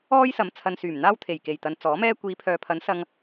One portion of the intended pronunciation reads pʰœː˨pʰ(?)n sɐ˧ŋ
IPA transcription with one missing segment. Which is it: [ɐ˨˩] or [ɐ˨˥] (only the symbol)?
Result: ɐ˨˥